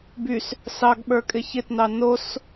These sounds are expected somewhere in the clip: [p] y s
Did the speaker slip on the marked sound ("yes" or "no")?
yes